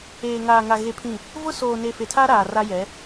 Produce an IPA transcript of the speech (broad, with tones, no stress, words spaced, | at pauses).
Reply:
eː˨ŋaː˨ŋa˨ ɣe˨pʰĩ˨ | vʊ˦ soː˨ne˨ fe˨tʰa˦ ɾaː˨ra˦jɛ˨˦